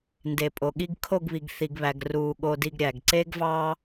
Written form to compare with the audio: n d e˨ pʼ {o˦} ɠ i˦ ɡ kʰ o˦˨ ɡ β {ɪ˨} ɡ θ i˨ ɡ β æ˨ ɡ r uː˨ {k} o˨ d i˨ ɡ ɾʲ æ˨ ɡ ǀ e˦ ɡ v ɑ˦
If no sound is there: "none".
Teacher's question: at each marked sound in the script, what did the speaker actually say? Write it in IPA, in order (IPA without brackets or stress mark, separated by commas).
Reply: o˨, i˨, ɠ